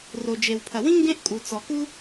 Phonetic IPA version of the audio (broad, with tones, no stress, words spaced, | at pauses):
ro˩d͡ʒe˩wpʰɐ˩wĩ˥ ŋɡẽ˥ʔkʼu˩ t͡sɔ˩ku˥